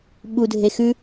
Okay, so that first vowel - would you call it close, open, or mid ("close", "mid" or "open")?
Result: close